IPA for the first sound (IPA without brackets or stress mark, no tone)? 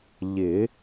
ʎ